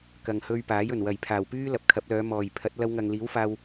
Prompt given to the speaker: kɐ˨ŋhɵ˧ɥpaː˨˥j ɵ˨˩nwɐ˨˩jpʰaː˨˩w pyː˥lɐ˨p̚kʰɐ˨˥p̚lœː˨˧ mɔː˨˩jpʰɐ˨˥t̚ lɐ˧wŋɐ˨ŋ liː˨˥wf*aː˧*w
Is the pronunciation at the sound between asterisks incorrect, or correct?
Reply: correct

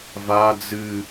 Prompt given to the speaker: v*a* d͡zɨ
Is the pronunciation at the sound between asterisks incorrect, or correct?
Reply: correct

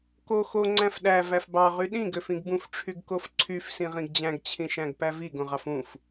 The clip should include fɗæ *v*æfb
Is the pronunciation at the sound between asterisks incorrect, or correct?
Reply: correct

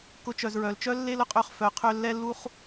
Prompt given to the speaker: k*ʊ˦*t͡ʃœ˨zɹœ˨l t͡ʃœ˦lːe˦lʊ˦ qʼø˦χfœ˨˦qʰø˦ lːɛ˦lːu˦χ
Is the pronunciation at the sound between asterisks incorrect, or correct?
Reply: incorrect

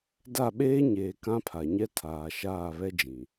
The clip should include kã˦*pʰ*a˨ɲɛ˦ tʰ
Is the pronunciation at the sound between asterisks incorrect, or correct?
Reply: correct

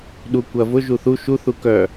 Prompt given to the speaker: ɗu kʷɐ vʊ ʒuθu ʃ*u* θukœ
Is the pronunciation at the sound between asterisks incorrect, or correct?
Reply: correct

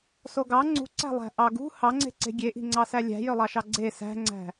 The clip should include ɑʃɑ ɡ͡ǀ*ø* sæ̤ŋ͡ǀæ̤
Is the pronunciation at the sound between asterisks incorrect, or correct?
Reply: incorrect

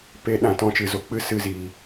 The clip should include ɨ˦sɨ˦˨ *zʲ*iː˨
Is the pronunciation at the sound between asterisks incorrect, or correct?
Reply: incorrect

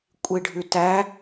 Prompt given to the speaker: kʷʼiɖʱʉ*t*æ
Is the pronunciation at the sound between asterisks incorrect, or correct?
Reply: correct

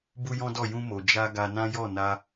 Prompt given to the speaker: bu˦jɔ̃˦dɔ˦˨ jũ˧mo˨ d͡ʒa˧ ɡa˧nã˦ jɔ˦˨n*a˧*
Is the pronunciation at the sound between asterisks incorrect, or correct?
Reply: correct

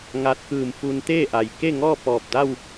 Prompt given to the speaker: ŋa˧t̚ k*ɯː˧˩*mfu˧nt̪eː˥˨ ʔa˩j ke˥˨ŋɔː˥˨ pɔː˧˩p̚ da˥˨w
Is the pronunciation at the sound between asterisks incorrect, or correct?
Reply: correct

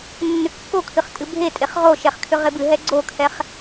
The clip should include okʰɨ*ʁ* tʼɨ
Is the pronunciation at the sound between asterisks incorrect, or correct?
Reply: incorrect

